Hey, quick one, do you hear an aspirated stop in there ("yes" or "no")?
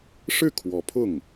yes